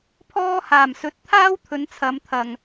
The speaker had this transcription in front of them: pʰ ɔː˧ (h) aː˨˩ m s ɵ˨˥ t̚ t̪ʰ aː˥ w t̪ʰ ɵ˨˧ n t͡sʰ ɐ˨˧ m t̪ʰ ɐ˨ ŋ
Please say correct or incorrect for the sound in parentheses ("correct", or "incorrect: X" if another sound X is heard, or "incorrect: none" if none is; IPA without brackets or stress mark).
correct